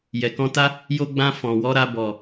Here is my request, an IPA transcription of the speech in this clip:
j ɛ˨ k ɔ̃˧ t a˦ | j o˧ ɡ͡b ã˧ f ɔ̃˨ w ɔ˨˦ ɾ a˧ b ɔ˨

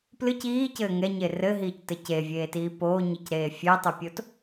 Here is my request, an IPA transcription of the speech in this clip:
p l ɨ c iː c ɘː ŋ ɛ ɲ e r ɘ ɦ iː c t ɘ c e vʲ eː t iː p oː ɲ ɨ c ɾ eː fʲ e tˤ ɨ pʲ o t

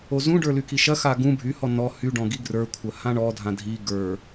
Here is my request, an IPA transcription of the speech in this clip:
o z ũ ɖ ə˞ l y k i ʃ ɐ x a ɡ ũ bʱ y h ɔ n ɔ h y ɖ ɔ̃ ɡ i ɡ r ə˞ kʷʰ ɐ h ã ɳ ɔ dʱ ã dʱ i ɡ ə˞

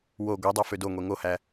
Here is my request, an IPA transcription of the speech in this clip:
w o ɡʷ e dˤ o f ø d o ŋʷ e ŋ o h æ

